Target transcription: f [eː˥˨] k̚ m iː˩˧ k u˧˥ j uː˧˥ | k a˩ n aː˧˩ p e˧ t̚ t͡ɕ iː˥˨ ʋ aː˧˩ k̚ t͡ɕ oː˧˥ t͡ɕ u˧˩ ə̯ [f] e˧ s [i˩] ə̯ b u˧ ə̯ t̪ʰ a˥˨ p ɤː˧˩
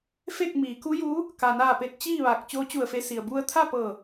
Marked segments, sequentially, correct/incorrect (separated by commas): incorrect, correct, correct